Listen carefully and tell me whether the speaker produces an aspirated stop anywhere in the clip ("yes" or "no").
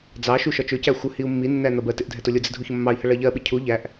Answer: yes